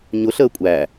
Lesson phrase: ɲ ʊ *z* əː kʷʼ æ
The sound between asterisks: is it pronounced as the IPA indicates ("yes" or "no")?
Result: no